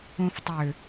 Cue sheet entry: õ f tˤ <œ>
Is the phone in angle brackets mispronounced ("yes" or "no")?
yes